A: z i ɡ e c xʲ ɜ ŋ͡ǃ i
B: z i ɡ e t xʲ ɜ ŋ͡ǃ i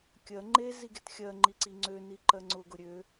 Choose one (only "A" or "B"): B